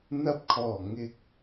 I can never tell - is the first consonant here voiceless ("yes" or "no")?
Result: no